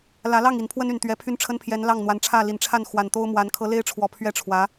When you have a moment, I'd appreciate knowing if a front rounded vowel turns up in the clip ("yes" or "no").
yes